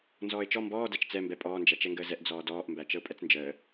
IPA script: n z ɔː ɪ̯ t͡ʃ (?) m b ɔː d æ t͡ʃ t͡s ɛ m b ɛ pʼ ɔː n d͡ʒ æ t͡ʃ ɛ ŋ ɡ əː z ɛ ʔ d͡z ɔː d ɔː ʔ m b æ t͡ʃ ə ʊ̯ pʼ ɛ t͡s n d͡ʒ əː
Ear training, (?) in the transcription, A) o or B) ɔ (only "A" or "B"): B